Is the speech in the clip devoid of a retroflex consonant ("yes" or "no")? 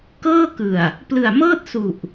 yes